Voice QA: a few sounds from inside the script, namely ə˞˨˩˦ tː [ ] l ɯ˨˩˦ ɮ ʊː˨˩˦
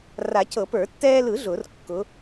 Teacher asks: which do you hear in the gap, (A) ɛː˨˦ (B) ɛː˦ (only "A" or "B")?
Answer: B